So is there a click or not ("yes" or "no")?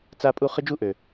no